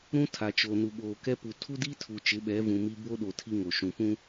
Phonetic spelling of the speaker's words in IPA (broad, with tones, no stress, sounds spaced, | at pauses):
ɾ ũ˦ tʰ a˨ t͡ʃ o˨ n u˨ ɓ oː˨ k ɛ˦ p u˨ tʰ u˦ d i˦ tʰ u˨ t͡ʃ ɪ˨˦ ɓ ɛ˨˦ v ũ˨ m i˦ b o˦ ɗ o˨ tʰ i˦ ŋ o˨ ʃ ũ˨ p ũ˦